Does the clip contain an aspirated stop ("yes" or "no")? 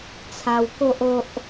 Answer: yes